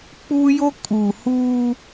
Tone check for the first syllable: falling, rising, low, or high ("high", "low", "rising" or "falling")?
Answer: high